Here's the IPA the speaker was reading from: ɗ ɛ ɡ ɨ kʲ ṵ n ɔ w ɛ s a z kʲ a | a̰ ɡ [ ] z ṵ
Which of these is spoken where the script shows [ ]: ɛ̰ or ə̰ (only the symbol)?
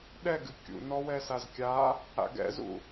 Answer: ɛ̰